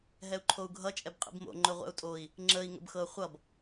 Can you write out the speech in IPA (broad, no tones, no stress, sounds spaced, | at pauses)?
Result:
ɦ ɛ u̯ ǃʰ o u̯ ɡʱ ʌ t͡ʃʼ ɛ b qʼ ḭ b m o̰ ŋ͡ǃ ɵ ʁʷ ɛ̰ u̯ tʼ o i̯ | ŋ͡ǁ ə i̯ ŋ ə̰ b x ɤ χʷ ʌ b